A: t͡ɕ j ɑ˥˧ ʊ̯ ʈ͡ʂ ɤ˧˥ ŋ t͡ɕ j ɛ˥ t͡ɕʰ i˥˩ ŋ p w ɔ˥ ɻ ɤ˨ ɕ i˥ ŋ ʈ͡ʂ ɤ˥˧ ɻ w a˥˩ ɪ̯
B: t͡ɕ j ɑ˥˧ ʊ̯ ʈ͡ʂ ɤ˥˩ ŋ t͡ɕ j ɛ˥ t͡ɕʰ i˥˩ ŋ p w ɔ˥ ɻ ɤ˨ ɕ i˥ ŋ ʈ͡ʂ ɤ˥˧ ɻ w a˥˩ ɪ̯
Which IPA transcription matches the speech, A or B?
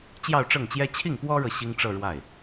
B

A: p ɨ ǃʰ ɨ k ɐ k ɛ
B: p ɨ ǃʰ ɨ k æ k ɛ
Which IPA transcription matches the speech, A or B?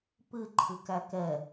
B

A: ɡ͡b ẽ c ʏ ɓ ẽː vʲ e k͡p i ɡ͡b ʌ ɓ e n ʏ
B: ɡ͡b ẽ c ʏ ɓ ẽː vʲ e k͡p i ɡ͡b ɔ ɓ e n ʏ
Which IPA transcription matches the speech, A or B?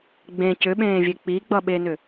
A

